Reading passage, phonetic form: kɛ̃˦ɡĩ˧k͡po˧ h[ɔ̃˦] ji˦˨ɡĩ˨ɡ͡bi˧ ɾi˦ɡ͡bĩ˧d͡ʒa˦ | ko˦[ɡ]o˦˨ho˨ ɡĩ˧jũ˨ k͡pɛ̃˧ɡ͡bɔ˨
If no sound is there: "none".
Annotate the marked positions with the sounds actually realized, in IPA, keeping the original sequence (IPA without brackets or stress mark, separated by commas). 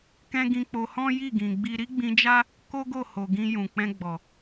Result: ɔ̃˦, ɡ